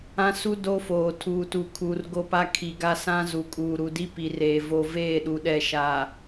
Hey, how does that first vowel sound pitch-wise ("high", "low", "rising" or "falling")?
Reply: high